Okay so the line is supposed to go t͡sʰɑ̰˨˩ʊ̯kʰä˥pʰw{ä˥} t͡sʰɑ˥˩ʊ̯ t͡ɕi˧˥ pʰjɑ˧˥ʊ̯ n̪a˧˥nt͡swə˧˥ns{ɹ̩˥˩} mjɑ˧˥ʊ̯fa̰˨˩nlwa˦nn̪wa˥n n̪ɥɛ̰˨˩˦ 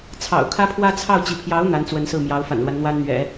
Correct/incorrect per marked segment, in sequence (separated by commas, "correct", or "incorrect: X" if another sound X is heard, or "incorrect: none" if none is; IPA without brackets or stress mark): correct, correct